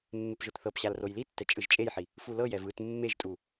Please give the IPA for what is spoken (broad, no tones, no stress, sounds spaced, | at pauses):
mː e p ʒ o t θ ɤ p ɕ a l r o j l i tː ɛ t͡ʃʼ ɯ ʒ t͡ʃʼ e j ħ i | f u l ɤ j ɛ v ɯ t mː e ʒ tʼ u